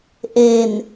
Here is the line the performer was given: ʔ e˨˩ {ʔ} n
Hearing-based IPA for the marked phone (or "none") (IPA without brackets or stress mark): none